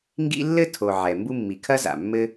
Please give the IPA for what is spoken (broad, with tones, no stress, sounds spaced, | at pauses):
ŋ ɡ ḭ˥ lː ɘ˥ tʰ o˩ ʕ ɛ˩ m b u˥ mː i˩ kʰ ɐ˥ z a̰˩ mː ɘ˥